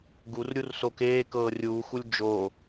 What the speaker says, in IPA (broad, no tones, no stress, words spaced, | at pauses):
ɡurɾʲurso keːkɤː rʲuːxulʲ d͡ʒo